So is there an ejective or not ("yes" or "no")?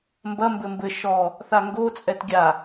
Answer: yes